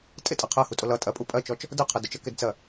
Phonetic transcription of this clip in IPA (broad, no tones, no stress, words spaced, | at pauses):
tʼɪtʼɜ qʰɜhutʼʊ lʌ tʼɜpʼu pʼɜt͡ʃɔt͡ʃ | dəqʰə dʊt͡ʃəkɪdt͡sɜ